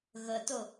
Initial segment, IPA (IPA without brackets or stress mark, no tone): ɣ